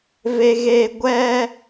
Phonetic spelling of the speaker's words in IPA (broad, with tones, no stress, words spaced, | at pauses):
ve˨ɣeː˨ ɡʷɛ˦